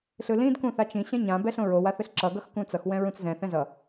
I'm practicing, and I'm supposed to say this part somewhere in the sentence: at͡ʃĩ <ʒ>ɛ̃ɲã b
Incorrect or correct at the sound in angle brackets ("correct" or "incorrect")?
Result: incorrect